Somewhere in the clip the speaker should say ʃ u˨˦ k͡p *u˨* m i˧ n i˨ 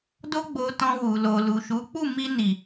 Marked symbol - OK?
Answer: no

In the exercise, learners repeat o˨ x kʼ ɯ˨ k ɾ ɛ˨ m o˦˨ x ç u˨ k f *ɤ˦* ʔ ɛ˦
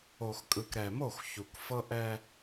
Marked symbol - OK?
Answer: yes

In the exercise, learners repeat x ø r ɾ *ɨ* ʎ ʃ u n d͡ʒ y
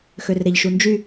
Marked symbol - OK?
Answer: no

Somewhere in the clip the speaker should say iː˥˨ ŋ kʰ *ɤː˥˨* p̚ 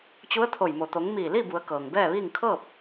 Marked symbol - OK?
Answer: yes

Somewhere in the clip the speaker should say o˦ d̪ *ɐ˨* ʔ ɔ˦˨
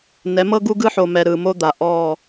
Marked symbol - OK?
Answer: no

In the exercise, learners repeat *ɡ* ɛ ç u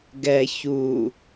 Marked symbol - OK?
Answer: yes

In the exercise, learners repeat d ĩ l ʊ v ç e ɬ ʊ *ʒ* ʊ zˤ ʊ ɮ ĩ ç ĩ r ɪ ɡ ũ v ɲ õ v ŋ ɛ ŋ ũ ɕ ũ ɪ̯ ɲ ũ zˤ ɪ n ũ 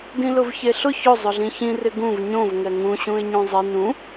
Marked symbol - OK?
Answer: no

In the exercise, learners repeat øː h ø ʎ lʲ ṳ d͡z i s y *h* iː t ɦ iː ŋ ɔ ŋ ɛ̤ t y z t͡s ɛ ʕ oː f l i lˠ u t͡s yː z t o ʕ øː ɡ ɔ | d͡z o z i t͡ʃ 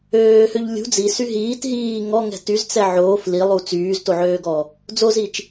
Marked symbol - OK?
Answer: no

